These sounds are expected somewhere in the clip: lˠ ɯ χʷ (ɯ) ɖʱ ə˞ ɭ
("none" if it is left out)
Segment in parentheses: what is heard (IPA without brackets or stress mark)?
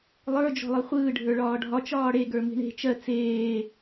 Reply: ɯː